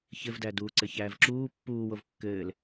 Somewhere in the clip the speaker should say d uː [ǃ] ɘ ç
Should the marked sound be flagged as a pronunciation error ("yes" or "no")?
yes